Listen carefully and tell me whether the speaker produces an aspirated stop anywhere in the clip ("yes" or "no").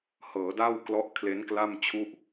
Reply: yes